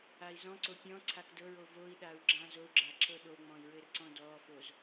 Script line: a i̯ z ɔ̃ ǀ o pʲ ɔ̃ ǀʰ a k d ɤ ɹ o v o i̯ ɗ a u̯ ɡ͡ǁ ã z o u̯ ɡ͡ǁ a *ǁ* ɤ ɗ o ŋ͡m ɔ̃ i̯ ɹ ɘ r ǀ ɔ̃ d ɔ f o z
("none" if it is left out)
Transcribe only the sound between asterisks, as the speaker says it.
ǁ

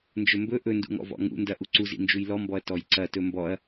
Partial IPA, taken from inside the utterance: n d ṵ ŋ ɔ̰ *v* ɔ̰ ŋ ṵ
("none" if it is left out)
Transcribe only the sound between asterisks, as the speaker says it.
v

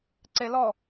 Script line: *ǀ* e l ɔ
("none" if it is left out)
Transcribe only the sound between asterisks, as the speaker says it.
ǀ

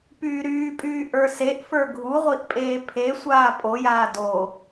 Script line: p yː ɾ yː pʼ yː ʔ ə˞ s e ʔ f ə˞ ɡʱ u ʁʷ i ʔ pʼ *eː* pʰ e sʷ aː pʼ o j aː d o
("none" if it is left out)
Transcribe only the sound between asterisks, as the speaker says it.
eː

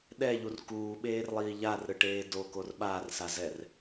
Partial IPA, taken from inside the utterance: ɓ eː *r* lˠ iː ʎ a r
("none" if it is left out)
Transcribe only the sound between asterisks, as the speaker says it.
r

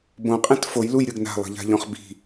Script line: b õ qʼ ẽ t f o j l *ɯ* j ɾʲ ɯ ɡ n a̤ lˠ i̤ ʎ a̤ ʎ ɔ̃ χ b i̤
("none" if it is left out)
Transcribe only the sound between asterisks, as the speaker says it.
u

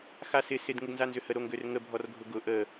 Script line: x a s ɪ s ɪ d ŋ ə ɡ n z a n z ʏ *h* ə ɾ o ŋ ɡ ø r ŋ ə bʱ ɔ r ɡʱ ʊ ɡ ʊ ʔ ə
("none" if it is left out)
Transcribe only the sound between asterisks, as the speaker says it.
h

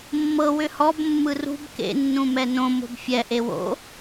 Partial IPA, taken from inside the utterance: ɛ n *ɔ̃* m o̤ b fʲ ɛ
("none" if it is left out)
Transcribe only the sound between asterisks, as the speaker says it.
õ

